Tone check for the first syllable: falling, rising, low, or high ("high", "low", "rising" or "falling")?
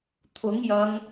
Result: rising